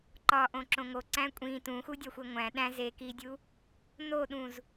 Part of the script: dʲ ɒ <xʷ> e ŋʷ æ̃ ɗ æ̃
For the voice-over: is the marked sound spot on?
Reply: yes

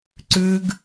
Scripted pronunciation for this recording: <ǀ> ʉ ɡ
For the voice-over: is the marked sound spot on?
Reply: yes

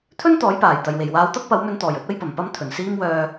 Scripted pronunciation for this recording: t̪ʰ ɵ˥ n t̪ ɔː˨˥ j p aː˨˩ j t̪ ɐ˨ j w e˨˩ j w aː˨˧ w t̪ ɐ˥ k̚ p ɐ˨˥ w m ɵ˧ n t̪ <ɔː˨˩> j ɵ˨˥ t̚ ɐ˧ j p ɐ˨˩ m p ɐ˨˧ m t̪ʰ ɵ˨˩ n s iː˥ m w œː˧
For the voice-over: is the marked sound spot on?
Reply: yes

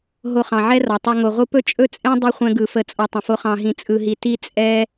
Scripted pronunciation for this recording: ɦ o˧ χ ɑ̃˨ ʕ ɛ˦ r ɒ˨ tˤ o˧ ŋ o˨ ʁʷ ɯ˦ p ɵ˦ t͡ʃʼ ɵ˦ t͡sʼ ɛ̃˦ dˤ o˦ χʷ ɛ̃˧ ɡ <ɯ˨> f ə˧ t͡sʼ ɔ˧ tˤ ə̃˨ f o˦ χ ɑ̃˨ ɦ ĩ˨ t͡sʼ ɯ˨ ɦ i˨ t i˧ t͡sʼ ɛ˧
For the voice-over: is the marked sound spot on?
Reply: yes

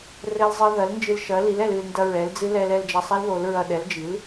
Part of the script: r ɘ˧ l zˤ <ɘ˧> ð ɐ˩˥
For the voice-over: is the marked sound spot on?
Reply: yes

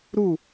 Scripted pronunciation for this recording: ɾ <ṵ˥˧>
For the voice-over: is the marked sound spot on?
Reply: no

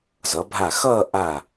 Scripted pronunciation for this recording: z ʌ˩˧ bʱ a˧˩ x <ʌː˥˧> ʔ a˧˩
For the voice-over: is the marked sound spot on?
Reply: yes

